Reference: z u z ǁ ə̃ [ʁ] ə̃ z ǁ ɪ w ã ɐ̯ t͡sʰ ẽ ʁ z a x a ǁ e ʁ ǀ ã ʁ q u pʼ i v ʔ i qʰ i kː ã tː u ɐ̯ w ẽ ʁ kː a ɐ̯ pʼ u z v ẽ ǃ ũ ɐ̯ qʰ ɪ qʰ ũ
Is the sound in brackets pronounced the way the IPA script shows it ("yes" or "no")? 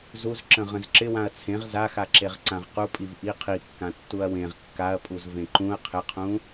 yes